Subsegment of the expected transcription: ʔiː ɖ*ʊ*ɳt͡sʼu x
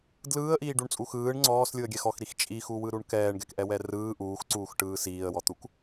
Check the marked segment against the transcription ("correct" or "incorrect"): incorrect